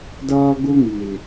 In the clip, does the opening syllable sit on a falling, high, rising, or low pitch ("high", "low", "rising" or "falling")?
high